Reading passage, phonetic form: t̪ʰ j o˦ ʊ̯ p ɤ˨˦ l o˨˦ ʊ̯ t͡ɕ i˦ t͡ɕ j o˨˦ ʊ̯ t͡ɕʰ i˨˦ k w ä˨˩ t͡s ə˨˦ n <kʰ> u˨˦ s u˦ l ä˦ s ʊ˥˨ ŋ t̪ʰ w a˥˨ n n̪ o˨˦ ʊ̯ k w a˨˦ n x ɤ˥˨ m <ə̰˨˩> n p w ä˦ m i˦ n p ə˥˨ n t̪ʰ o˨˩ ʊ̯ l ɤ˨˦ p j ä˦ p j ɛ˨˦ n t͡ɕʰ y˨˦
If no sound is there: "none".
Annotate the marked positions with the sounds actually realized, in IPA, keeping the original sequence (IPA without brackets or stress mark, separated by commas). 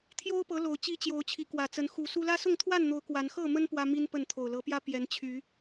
x, ə˦